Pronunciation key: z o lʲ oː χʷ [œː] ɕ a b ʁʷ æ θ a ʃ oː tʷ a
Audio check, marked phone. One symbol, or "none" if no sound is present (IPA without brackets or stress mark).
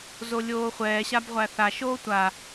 ɛː